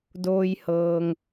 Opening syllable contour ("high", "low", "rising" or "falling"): low